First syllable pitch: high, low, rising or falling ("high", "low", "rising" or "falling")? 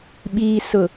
low